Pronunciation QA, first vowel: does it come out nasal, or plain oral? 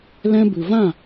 nasal